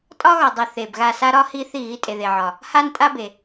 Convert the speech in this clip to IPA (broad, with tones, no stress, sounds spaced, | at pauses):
tʼ ɒ˥ ɣ ɒ˨ dˤ i˨ θ e˨ b ɣ a˦˨ s a˥ ɾ ɒ˥ h i˥ θ i˦˨ ɣ i˥ tʼ e˨ ð e˨ ʕ ɒ˨ | h a˥ n tʼ a˥ b e˨